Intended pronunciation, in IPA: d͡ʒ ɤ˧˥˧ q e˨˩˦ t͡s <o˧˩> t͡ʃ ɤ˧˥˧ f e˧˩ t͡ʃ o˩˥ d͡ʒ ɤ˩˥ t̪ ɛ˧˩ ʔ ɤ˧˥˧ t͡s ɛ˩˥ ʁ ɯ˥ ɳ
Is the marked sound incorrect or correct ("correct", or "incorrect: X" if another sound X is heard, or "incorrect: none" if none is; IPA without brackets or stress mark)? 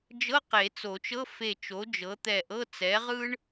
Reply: incorrect: o˨˩˦